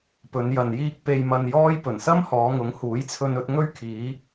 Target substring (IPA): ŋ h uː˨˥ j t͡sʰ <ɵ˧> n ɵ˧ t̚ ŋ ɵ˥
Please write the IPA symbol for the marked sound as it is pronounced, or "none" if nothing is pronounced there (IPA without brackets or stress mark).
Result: ɵ˧